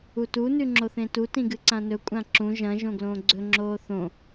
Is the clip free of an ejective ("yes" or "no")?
no